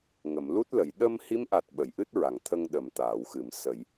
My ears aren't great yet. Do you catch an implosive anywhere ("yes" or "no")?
yes